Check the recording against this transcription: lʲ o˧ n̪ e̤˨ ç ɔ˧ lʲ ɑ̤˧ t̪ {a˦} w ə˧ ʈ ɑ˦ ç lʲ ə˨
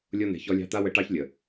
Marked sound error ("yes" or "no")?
no